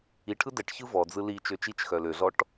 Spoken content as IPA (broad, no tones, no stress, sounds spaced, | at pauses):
i ʈʰ ɯ d ɛ ʈ ç ɯ v ɔ d͡z ɯ l i t͡ʃ ø t͡ʃ i t͡ʃ x œ l ø ɮ ɔ ʈ